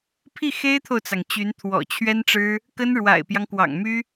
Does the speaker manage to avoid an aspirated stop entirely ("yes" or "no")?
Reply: no